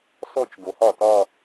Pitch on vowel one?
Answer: falling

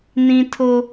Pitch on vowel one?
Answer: high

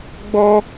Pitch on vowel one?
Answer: high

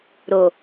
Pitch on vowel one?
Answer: low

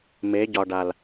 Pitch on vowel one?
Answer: rising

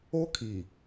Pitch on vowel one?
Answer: high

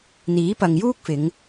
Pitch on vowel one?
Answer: rising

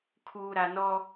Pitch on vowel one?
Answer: low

